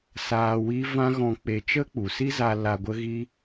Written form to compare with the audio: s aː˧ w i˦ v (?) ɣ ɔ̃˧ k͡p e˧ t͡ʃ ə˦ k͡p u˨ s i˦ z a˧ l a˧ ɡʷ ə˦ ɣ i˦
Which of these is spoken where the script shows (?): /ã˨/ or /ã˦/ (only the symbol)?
ã˦